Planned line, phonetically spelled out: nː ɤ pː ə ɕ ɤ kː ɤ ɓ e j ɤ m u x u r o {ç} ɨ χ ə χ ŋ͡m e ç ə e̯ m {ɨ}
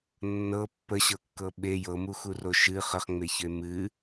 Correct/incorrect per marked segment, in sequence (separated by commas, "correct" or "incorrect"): incorrect, correct